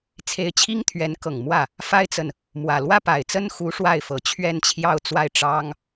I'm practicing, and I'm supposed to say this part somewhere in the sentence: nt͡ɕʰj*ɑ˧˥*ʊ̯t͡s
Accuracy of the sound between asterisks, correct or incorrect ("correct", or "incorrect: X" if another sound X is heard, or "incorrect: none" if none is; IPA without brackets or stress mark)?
incorrect: ɑ˥˧